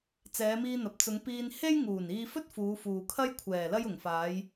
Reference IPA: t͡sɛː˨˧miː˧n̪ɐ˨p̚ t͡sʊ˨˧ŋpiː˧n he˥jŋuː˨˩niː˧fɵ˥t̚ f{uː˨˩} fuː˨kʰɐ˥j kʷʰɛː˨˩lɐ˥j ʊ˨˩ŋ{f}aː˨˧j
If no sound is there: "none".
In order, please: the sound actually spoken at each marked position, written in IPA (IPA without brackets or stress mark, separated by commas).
uː˨˧, f